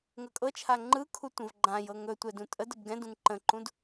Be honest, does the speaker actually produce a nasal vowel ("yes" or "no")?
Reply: yes